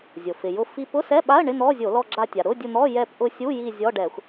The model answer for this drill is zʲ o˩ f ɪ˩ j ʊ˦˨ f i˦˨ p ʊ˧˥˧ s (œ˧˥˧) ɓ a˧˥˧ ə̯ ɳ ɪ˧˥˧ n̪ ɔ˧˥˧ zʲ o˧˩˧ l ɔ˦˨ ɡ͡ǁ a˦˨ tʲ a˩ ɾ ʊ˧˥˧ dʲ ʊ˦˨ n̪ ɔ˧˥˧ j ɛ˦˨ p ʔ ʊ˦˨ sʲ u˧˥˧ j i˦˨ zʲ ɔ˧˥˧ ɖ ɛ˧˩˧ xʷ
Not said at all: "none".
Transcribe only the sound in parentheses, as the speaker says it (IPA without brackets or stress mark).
ɛ˧˥˧